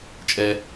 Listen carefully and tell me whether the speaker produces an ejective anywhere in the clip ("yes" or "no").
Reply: yes